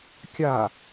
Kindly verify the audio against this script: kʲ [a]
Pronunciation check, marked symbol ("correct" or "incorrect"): correct